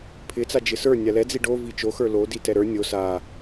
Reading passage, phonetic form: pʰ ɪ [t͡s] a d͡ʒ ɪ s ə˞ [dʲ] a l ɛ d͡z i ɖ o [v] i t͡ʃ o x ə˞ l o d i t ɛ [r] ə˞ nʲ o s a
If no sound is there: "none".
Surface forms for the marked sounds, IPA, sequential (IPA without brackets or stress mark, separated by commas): t͡s, nʲ, v, ɾ